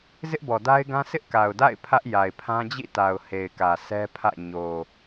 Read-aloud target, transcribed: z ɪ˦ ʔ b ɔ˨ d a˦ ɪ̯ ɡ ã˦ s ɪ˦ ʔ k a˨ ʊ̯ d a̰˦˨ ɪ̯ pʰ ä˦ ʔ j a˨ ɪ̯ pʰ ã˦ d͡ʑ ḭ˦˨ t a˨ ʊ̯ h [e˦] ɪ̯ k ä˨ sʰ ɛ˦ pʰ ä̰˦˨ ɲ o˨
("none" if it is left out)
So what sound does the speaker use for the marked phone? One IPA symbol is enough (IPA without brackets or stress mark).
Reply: e˨